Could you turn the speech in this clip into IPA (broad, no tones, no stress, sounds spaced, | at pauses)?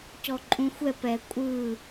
c ɔ ǃʼ ũ xʷ ɛ p ɛ kʷʼ ɯ